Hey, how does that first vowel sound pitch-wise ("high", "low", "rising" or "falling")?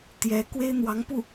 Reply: rising